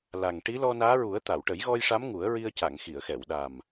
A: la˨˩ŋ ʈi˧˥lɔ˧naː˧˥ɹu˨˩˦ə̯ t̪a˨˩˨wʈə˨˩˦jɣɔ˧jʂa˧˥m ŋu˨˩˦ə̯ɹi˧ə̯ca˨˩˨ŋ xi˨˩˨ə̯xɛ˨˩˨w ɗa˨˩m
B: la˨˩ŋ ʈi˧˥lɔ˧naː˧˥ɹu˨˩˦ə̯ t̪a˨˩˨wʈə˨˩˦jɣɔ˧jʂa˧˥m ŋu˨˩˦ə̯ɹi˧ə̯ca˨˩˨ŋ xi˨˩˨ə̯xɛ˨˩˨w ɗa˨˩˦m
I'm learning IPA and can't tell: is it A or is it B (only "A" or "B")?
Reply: A